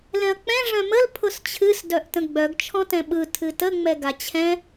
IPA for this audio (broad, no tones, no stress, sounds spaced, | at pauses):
l ɛ̃ ɐ̯ k͡p ɛ̃ ʐ œ̃ m ə l pʰ ʊ s t͡ɕʰ ɨ s d œ ʔ t ə̃ ɡ͡b œ ɡ t͡ʃʰ ɔ̃ t ɛ̃ ɓ ɯ tʰ ɨ t ə ŋ͡m ɛ ɡ a t͡ɕʰ ɛ̃